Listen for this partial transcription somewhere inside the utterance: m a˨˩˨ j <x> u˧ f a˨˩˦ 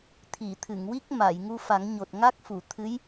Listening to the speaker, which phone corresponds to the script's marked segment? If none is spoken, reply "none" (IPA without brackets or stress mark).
ŋ